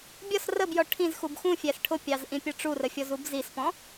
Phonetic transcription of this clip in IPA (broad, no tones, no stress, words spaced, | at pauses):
bʲɒs rəbjɔ ʈʰĩzxub xũfʲæs ʈʰʊpʲɑz ʔĩpʲɒʈ͡ʂurə fʲɔzubzispɔ̃